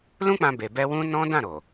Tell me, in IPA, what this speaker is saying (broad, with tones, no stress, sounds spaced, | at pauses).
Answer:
l ũ˦ k͡p ã˧ b e˨ b ɛ˧ w ũ˦ n ɔ̃˦ d ã˦˨ ɾ o˨